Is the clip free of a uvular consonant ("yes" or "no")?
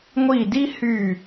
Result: yes